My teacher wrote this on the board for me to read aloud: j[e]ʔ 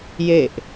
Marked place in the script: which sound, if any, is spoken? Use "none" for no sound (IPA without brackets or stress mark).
e